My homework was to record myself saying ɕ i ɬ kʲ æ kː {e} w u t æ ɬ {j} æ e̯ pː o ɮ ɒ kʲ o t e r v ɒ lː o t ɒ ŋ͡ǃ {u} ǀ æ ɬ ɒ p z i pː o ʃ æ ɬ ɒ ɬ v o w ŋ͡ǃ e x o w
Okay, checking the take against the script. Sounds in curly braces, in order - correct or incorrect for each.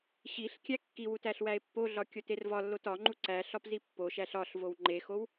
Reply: incorrect: i, incorrect: w, correct

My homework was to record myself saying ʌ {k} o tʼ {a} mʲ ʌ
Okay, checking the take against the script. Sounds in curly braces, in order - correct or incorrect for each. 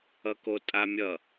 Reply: correct, correct

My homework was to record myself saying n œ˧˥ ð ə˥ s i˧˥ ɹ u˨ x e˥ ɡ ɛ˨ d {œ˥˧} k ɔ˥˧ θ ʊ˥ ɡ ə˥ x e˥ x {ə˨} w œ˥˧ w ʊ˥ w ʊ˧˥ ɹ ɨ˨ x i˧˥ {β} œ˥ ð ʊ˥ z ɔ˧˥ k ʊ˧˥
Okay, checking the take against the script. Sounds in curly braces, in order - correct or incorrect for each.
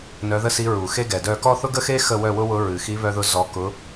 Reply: correct, incorrect: ə˥˧, correct

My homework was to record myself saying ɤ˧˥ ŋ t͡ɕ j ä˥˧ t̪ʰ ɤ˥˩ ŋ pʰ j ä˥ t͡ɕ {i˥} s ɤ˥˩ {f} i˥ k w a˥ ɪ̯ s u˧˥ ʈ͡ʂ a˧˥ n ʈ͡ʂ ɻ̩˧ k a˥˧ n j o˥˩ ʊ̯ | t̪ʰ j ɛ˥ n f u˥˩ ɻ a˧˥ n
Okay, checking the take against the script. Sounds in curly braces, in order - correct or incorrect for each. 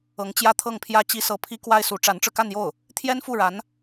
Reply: correct, incorrect: pʰ

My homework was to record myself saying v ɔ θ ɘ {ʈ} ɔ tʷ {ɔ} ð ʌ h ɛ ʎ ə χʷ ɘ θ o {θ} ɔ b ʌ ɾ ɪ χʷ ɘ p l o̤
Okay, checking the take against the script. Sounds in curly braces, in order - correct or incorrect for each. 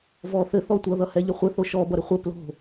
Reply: incorrect: θ, incorrect: ʌ, incorrect: ʃ

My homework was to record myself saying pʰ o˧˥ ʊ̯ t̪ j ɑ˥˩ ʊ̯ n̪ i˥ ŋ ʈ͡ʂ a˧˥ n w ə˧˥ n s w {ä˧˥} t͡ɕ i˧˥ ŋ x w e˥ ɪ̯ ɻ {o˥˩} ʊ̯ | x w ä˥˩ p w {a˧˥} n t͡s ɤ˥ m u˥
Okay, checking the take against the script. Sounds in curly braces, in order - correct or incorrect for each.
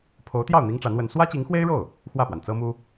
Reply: incorrect: ä˥, correct, incorrect: a˩

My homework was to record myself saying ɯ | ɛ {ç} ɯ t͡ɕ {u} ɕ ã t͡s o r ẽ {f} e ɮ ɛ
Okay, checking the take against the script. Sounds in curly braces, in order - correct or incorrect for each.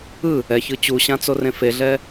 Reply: correct, correct, correct

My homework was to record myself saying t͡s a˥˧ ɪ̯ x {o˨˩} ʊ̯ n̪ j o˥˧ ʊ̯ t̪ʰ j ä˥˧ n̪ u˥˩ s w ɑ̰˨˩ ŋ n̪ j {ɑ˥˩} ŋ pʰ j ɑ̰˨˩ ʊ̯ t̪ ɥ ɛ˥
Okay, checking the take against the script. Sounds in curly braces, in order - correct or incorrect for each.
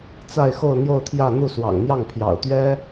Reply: incorrect: o˥˧, correct

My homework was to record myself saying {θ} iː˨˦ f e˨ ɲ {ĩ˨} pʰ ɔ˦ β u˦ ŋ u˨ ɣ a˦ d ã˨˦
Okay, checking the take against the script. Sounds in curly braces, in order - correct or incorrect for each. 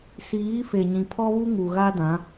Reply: incorrect: s, correct

